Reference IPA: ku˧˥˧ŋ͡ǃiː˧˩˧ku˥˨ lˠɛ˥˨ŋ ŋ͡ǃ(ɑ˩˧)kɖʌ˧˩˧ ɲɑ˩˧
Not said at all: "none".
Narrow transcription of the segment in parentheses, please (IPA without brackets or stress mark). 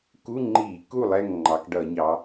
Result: ɑ˩˧